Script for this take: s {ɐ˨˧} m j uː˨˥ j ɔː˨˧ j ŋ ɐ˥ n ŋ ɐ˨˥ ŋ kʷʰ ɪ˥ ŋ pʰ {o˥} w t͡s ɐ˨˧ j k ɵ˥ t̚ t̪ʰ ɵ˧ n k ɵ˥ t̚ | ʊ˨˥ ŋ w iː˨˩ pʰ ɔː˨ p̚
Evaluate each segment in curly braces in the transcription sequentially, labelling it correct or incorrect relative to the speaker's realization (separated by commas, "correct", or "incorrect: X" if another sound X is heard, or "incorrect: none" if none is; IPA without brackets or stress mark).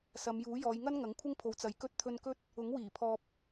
correct, incorrect: o˨˧